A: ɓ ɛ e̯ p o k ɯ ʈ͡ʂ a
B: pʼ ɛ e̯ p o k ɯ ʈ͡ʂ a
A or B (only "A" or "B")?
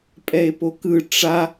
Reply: B